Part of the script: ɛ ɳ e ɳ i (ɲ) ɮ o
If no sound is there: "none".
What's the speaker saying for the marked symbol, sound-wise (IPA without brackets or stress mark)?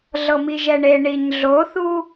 ɲ